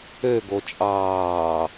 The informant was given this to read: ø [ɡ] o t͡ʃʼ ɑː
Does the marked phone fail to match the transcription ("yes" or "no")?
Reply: no